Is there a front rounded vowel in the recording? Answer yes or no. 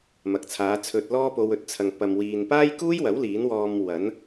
no